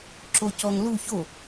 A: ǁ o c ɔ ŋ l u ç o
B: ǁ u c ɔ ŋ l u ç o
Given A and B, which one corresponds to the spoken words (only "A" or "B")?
A